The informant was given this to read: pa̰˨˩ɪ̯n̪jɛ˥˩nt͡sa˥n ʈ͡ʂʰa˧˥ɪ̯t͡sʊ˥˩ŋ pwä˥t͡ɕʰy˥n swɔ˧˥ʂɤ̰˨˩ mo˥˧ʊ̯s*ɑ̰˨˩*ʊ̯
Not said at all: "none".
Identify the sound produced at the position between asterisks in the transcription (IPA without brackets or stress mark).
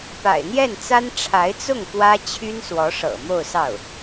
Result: ɑ˥˩